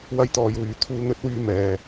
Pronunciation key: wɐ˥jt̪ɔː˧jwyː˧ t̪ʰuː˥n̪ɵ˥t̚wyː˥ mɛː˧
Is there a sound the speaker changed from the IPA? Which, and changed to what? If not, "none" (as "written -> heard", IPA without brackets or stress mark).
none